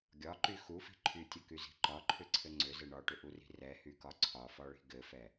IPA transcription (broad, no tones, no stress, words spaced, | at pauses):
ɡʲɒǃy xufi̤ ǃʰytʲɘkyzi̤ ǃɒǃʰʏǀʰɘ ŋ͡ǀʏzɘ ɳɒʈʏʔuri̤ rɛhykɒ ǀʰɒfɒɭi̤ ɡɘfɛ